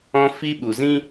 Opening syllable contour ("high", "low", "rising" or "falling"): high